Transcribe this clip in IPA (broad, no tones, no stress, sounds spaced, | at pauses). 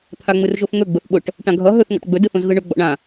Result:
t̪ʰ a ŋ͡m ɯ r ʒ o f ŋ ɵ ɡ͡b ʊ θ ɓ ʊ ʈ | ʈ ã ɡʱ ʌ ɦ ɵ θ ŋ ɔ̰ ʈ ɡ͡b ɵ d ɯ θ õ z ɣ ɯ ɳ ɵ ɡ͡b ɔ̰ ɳ ã